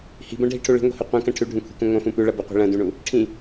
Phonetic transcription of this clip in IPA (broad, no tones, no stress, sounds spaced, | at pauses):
h i̤ b ɐ̃ ɖʱ i ʈʰ u ɭ i̤ ŋʷ i̤ h u qʷ ɐ̃ k ɐ̃ ʈʰ ʉ ɖʱ ũ kʷʰ i̤ k ũ ŋʷ ɐ̃ f ũ p ʉ ɭ ɐ b u qʷ i̤ ɭ ɐ̃ d ũ ɳ u | ʈʰ ĩ